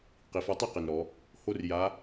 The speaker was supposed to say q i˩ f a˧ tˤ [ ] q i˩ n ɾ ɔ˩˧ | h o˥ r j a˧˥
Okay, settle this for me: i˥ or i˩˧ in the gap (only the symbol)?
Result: i˥